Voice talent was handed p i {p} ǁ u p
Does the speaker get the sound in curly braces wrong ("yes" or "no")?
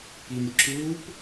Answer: yes